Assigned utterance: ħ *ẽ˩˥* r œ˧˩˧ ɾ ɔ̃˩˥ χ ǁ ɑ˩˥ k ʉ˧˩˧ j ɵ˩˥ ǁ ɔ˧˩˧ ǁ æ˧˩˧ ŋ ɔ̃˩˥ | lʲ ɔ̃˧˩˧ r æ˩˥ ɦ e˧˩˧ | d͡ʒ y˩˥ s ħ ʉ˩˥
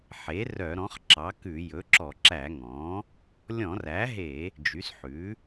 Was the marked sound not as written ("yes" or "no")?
yes